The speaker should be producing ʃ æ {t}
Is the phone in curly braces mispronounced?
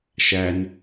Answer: yes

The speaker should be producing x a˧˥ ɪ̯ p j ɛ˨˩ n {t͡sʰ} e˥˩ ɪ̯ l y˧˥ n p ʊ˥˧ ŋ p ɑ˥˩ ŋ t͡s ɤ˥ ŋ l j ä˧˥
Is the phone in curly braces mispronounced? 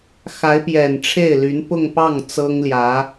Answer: yes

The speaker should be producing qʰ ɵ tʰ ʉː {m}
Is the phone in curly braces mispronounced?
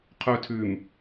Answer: no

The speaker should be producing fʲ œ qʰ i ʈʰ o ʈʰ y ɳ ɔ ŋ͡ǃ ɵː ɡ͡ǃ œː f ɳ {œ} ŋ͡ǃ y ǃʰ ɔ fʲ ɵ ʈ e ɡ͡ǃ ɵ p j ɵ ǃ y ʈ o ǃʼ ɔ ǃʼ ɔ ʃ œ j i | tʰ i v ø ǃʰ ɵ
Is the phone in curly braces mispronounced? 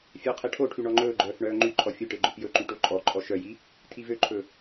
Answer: yes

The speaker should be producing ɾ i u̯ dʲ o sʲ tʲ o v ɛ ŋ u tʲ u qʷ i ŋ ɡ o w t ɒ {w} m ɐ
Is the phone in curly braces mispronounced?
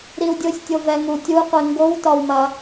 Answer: no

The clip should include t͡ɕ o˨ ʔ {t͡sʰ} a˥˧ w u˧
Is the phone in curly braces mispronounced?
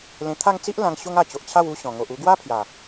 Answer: yes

